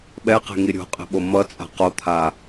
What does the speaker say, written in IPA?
ɓɛqe̤ ŋiɾʲo̤qʼe̤ ɓomʌt͡sʼa̤ qot̪ʰa

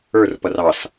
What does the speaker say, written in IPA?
ə˞rpʌr ɑs

